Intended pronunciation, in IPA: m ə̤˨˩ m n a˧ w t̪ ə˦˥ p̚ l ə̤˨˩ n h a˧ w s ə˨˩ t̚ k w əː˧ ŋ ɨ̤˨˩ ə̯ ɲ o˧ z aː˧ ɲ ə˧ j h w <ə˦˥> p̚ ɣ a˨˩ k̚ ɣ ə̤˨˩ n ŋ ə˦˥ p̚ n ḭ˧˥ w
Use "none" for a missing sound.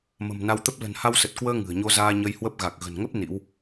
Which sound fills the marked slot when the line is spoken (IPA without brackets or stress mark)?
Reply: ə˦˥